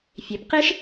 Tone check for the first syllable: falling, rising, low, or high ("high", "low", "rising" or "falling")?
rising